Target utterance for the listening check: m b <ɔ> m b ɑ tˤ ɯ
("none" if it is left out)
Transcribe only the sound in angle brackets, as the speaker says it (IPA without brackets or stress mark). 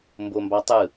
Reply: o